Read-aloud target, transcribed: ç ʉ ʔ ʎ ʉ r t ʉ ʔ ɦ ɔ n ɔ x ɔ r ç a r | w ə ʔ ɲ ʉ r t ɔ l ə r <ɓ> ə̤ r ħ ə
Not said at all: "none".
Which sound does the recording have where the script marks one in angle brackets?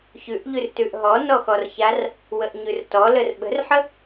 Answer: ɓ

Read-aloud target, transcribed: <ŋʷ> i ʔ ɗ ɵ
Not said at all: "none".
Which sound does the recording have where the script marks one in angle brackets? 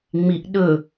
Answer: ŋ͡m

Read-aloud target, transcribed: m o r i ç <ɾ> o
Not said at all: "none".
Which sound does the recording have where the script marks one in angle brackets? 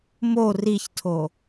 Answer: tʰ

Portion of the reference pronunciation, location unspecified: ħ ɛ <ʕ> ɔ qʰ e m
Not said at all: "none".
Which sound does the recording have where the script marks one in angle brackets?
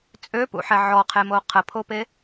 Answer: ʕ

